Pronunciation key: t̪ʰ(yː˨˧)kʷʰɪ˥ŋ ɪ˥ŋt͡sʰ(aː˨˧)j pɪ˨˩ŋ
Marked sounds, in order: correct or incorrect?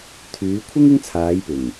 correct, correct

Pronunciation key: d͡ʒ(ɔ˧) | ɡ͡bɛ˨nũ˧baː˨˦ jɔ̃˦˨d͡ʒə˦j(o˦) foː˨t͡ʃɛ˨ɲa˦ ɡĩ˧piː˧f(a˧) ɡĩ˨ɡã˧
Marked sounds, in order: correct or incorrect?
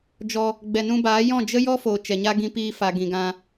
correct, incorrect: ɔ˦, incorrect: a˨

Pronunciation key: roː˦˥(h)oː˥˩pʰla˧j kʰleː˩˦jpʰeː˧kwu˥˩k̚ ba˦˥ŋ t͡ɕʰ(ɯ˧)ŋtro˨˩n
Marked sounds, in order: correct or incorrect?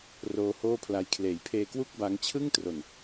correct, incorrect: ɯ˥˩

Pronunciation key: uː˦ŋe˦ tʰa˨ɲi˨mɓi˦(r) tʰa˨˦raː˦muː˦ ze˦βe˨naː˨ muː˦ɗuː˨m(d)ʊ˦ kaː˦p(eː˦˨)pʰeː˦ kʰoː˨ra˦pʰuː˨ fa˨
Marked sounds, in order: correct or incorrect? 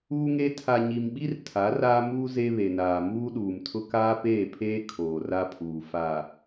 correct, incorrect: tʰ, correct

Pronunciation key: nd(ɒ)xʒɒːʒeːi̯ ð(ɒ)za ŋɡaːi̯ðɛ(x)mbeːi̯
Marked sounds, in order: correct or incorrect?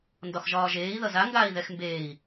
correct, incorrect: ʌ, correct

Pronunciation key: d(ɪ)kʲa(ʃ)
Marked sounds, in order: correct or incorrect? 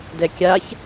incorrect: ɛ, incorrect: ç

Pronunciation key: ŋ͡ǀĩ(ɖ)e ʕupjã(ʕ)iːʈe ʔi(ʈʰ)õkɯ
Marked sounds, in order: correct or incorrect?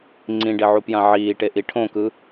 correct, correct, correct

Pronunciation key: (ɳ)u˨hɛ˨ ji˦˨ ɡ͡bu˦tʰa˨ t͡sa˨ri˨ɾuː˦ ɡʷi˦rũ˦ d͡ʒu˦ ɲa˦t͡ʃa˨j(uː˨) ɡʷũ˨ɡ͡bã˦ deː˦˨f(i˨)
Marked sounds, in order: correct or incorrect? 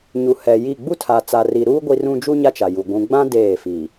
incorrect: ɲ, incorrect: u˨, correct

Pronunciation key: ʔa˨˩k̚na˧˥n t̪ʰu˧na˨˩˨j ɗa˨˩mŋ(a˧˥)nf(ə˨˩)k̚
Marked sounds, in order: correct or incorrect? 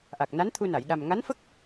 correct, incorrect: ə˦˥

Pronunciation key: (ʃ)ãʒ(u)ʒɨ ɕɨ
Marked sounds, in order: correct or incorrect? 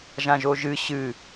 incorrect: ʒ, incorrect: o

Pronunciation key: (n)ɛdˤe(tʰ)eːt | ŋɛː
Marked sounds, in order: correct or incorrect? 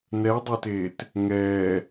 correct, incorrect: t

